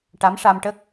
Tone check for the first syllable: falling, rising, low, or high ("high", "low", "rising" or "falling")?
rising